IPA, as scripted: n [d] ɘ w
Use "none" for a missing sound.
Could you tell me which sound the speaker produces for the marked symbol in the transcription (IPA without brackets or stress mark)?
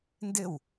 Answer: d